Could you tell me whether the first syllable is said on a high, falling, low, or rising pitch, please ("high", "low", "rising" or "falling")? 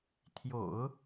low